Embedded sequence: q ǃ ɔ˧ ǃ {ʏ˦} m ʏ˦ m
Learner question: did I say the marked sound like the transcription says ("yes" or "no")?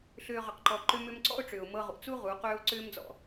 yes